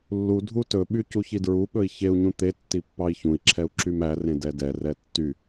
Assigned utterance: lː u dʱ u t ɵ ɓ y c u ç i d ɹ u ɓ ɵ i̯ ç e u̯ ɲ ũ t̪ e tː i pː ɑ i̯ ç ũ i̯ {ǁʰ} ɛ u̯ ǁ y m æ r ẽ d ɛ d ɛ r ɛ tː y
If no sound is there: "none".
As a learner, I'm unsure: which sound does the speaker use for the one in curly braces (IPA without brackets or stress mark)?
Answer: ǁʰ